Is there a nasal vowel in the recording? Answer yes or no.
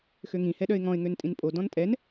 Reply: yes